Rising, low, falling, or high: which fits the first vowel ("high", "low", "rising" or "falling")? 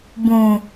low